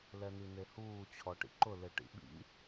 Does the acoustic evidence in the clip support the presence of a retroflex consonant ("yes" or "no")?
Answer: yes